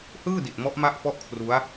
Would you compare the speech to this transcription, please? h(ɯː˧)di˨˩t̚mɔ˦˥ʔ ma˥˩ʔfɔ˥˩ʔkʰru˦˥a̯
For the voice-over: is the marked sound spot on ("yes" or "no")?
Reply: no